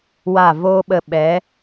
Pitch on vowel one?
falling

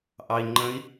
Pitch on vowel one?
low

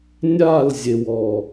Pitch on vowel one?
falling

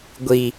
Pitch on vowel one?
low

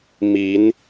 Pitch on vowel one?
rising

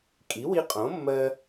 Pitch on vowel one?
rising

